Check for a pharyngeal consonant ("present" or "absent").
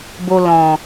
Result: absent